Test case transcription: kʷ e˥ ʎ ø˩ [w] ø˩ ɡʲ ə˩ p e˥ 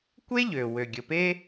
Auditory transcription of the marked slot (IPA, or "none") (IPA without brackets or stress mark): w